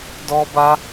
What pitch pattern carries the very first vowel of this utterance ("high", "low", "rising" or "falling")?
high